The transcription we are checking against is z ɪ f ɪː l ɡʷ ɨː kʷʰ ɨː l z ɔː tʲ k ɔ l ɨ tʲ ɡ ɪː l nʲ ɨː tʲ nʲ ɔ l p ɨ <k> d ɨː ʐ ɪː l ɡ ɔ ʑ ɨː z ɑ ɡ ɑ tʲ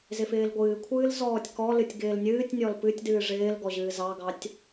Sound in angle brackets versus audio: incorrect: tʲ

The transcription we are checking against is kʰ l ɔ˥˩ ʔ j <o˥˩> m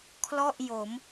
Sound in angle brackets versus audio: incorrect: o˩˦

